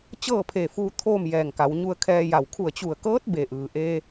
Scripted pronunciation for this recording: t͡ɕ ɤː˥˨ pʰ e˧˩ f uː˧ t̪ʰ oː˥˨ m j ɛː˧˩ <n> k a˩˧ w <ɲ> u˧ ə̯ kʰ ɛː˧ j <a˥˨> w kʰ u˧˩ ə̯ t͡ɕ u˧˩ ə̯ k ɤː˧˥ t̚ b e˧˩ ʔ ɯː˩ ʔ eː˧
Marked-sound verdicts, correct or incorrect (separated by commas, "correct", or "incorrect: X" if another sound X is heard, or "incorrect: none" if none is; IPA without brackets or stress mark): incorrect: ŋ, correct, incorrect: a˧˩